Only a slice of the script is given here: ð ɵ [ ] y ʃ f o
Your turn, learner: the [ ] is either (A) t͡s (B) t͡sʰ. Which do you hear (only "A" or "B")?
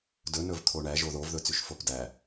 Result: A